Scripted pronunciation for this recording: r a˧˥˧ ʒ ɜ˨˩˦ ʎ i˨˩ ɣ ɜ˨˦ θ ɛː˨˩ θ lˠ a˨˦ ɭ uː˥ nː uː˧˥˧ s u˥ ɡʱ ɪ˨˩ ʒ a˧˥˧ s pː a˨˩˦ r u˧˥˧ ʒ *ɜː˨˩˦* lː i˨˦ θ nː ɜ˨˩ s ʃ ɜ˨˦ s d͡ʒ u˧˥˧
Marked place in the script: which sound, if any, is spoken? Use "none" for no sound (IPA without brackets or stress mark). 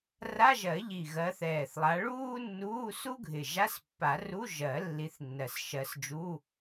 ɜ˨˩˦